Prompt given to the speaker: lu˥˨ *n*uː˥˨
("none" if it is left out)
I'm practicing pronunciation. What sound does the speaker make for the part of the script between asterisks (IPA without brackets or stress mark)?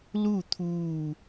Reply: t̪ʰ